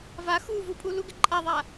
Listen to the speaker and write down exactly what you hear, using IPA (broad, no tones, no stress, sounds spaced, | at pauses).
v a x u v u pʼ u l u ɡ ɪ ǃʼ a ðˤ a